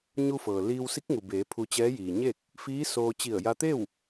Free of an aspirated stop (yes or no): no